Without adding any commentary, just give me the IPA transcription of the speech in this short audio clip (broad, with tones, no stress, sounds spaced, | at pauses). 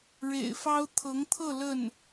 ɻ ḛ˨˩ ɪ̯ f ɑ˥ ʊ̯ t̪ʰ ɤ˧˥ ŋ t̪ʰ ɤ˥˧ l ə˥˩ n